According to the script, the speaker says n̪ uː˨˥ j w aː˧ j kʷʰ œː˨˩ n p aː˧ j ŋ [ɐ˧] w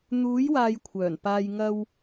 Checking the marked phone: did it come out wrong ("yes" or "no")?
no